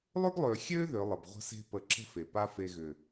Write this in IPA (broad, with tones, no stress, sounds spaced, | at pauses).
lˠ ʏ˦ ɡ lˠ ø˨ xʲ ø˦ ð ʏ˨˦ lˠ ə˨ b ʁʷ ə̤˦ s e̤˦ p ə˦˨ ǁ ə̤˦ f e˨ p a˦ f e˧ ɣ ʏ˨